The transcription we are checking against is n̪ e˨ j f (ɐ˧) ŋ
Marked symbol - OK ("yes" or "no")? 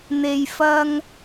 yes